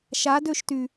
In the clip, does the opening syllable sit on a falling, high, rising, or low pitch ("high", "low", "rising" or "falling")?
rising